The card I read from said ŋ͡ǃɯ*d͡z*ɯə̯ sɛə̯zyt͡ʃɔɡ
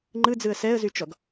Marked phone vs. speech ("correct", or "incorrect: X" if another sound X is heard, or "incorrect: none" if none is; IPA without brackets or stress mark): correct